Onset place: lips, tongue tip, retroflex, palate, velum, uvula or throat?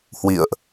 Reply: throat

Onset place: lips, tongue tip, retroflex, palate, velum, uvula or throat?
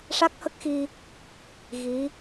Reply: retroflex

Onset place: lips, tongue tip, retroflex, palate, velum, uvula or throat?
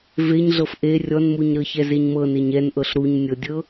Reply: lips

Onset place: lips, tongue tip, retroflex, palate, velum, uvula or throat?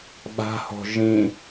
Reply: lips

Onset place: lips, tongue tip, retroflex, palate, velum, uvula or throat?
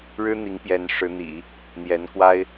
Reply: retroflex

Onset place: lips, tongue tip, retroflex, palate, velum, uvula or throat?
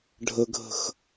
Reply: retroflex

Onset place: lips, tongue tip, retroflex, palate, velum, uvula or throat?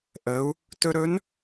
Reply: throat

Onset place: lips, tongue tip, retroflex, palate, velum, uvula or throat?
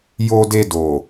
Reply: palate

